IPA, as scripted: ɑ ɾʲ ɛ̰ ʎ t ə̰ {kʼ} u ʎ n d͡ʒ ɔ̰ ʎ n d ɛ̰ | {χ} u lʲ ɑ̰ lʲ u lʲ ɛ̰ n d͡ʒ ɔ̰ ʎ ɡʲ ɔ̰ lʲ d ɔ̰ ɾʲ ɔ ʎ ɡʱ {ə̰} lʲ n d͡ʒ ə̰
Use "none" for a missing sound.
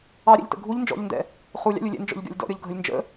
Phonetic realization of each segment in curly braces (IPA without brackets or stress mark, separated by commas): ɡʱ, χ, ə